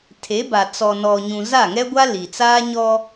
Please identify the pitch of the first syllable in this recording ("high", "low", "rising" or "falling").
rising